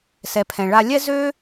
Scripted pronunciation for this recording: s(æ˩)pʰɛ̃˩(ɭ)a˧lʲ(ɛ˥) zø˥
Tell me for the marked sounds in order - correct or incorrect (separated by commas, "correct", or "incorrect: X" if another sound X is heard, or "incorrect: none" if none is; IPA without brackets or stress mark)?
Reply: incorrect: ɛ˩, correct, correct